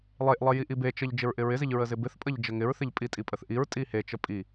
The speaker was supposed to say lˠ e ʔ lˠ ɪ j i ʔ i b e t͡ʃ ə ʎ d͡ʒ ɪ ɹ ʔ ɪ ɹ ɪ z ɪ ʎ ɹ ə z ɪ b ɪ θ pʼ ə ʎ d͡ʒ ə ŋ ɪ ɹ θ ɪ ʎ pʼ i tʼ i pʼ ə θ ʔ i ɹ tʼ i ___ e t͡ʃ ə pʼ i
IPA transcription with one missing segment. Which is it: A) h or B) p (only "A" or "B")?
A